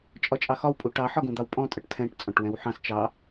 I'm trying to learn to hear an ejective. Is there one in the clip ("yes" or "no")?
yes